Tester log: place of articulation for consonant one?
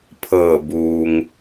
labial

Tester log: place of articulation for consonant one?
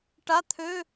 retroflex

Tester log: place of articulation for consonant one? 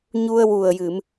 palatal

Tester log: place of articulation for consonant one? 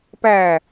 labial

